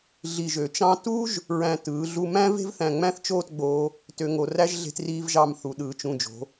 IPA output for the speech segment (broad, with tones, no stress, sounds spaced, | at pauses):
ɮ i˧˩ ʒ ø˩˧ t͡ʃ ɑ̃˥ t u˥ ʒ | ɹ æ̃˧˩ t ɯː˩˧ ɮ u˧ m æ̃˥ v e̤˥ v θ æ̃˧˩ ŋ͡m æ̃˥˧ θ t͡ʃ oː˥˧ t ɡ͡b oː˧ | t ø˧ ŋ o˧ r æ˥ ʒ ɮ e̤˧ t r iː˧ v ʒ ɑ˧˩ m θ u˩˧ ɗ ɯː˩˧ t͡ʃ ũ˧˩ d͡ʒ o̤˩˧